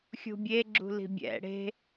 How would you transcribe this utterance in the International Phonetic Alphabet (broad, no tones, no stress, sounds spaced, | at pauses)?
xʲ ṳ bʲ e ɡ͡ǁ ṳ l i̤ bʲ ɛ̰ ɽ e̤